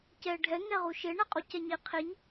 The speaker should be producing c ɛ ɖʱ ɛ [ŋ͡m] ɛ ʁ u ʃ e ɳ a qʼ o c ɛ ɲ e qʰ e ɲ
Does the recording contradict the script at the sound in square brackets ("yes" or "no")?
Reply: yes